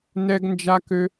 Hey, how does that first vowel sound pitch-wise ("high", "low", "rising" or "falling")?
high